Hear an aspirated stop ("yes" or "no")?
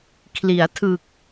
yes